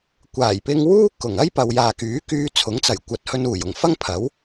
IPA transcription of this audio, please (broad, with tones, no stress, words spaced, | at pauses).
kʷaː˨˩jpɪ˧ŋ wuː˥kʊ˨˩ŋɐ˥j pɐ˨wjaː˨kyː˨˥kyː˧ t͡sʰʊ˨˥ŋt͡sɐ˨˩jkʷɐ˨t̚hɵ˧n uː˨˩jʊ˨˩ŋ fɐ˥ŋpʰɐ˨˥w